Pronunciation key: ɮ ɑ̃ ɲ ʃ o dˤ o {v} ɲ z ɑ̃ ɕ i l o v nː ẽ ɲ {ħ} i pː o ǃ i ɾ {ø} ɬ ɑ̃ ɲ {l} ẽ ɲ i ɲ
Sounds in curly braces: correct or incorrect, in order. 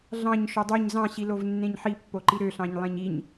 incorrect, correct, correct, incorrect

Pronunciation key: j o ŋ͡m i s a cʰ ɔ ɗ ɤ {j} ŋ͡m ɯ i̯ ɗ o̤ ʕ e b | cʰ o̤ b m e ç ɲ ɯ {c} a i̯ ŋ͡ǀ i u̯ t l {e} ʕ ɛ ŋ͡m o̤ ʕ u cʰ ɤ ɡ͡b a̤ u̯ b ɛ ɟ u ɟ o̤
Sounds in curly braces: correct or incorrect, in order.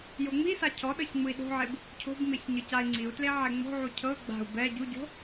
incorrect, correct, correct

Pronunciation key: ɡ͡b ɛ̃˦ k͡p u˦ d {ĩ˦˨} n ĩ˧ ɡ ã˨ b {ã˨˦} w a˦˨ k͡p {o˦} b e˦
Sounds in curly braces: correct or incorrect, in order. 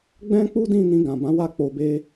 correct, correct, incorrect

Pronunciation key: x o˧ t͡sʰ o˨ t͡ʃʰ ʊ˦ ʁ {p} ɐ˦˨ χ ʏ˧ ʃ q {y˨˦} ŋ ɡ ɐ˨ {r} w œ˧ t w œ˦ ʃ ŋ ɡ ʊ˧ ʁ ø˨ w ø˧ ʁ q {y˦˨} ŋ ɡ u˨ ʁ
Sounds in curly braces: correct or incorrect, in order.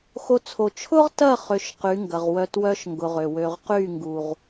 incorrect, correct, incorrect, correct

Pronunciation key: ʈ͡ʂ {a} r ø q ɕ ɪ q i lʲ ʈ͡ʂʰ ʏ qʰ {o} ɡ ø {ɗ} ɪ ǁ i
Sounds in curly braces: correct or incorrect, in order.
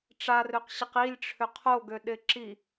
correct, correct, correct

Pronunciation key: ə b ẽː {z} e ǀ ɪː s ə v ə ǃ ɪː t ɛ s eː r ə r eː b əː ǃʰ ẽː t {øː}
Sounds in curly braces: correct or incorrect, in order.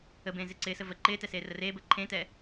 correct, incorrect

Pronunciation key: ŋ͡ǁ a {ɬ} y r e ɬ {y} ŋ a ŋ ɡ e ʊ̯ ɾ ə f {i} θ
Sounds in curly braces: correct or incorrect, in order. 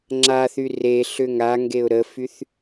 incorrect, incorrect, incorrect

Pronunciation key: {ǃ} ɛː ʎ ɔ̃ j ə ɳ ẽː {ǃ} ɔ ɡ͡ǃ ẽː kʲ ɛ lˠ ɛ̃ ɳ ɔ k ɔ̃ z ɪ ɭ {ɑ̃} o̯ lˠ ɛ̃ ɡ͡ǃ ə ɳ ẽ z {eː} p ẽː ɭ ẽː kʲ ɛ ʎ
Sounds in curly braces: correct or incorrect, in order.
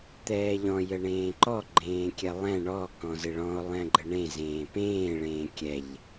incorrect, correct, incorrect, incorrect

